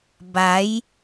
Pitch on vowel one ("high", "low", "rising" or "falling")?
rising